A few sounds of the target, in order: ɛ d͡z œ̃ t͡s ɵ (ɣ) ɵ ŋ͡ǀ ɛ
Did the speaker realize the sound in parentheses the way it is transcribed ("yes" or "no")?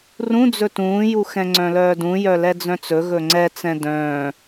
yes